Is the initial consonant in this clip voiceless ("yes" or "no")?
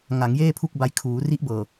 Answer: no